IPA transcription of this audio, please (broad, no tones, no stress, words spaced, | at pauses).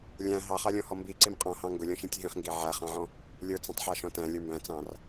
lʲæ̃ ɦɑχɑlʲɔ̃hɔ mbiǀim qʼɔ̃hɑ̃ ŋɡʊlʲɔ̃ʃĩtʲ ɦĩχŋɡi ʕæχɑ̃ʕɔ̃ | lʲə˞t͡sĩtˤħɑʃɔ̃ tæ̃lʲə˞ mbæ̃t͡sɑ̃r